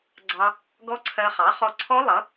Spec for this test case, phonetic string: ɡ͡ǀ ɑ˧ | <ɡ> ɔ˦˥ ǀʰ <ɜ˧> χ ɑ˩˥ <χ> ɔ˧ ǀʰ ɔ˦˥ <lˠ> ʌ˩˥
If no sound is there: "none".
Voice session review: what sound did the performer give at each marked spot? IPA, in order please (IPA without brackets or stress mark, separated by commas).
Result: ɡ, ɜ˧, χ, lˠ